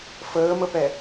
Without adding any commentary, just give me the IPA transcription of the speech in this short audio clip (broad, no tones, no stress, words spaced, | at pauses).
fəːməpɛ